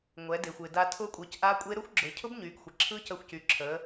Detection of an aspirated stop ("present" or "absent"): present